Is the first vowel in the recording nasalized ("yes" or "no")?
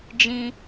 yes